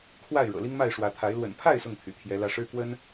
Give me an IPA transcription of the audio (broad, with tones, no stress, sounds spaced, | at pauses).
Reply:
kʰ w a˥˨ ɪ̯ ɻ ɤ̰˨˩ l i˦ ŋ m a˥˨ ɪ̯ ʂ w ä˨˦ t̪ʰ a˨˦ ɪ̯ l w ə̰˨˩ n pʰ a˥˨ ɪ̯ s ʊ˥˨ ŋ t̪ʰ y̰˨˩ t̪ʰ j ɛ˨˦ l ä˨˦ ʂ ɻ̩˦ k w ə˦ n